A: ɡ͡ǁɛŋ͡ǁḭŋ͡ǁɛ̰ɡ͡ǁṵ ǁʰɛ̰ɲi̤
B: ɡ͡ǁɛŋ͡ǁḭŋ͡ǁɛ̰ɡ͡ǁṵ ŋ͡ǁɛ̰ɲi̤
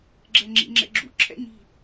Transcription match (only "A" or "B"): A